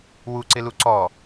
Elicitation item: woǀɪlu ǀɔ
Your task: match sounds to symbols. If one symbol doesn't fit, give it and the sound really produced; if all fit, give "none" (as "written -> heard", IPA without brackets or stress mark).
o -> u